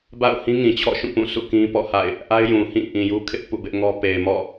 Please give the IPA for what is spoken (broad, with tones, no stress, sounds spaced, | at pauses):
b a̰˦˨ ʊ̯ h ĩ˦ ŋ ĩ˨ t͡ɕʰ ɔ̰˦˨ ʃ ũ˦˨ p ũ˦˨ sʰ ṵ˦˨ k ĩ˦ p ɔ̰˦˨ h a̰˦˨ ɪ̯ | ʔ a˦ ɪ̯ j ũ˨ h ĩ˦˨ ʔ ĩ˨ j u˦ kʰ ɪ˦ ʔ p ṵ˦˨ b ɪ˦ ʔ ŋ ɔ˦ p e˨ ɪ̯ m ɔ̰˦˨